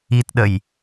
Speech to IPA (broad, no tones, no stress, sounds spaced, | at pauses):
i t ɗ ə j